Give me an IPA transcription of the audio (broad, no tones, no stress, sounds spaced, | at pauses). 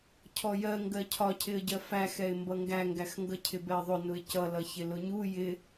cʰ ɔ j ɜ ŋ ɡ ɜ cʰ ɒ cʰ ɪ ə̯ ɟ ɜ f æ x ɛ ɪ̯ m b ʌ ŋ ɡ æ ŋ ɡ æ x ŋ ɡ ʌ cʰ ɪ b ɛ ə̯ ðˤ ʊ n ʊ ɪ̯ c ʌ l ʌ ç ɪ l ʊ ɲ u j ɪ